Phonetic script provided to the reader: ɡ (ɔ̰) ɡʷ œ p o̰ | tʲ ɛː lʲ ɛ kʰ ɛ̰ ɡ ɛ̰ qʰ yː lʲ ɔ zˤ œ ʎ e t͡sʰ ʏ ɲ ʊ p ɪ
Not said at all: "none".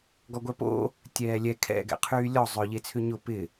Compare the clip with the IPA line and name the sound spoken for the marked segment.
ɔ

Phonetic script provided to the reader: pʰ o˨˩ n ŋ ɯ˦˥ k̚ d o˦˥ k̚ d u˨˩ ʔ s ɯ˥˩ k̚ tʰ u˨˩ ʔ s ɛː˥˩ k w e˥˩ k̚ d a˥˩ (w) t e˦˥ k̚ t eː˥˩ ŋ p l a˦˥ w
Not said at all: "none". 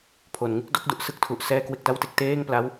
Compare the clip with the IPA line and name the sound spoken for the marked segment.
w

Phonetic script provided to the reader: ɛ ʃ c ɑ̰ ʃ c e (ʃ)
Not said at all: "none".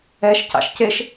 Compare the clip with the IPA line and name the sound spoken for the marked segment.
ʃ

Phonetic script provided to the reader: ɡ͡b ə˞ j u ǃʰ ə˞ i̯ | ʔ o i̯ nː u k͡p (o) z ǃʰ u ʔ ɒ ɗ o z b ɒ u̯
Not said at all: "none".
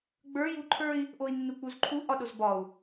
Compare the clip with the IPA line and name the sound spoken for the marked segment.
u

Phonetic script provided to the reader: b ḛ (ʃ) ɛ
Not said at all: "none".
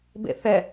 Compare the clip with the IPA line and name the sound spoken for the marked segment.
θ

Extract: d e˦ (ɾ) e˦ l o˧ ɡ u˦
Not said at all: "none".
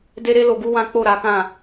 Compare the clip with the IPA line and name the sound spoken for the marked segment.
ɾ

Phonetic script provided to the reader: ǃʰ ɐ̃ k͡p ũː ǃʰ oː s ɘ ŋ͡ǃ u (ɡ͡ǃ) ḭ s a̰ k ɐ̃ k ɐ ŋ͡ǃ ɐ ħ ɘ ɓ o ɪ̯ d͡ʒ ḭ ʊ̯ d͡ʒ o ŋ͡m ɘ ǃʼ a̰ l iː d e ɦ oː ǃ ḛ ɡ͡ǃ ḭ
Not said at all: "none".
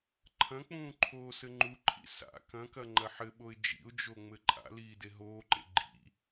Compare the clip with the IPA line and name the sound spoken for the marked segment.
ǃʰ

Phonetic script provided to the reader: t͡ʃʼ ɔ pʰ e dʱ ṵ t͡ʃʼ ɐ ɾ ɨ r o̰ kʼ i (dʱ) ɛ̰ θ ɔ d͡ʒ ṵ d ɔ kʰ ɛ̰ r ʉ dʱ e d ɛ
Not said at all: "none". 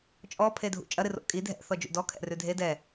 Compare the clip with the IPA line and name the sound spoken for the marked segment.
dʱ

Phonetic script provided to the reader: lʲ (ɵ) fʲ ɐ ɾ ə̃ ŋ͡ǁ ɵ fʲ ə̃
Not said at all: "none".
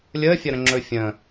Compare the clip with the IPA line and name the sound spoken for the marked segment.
ə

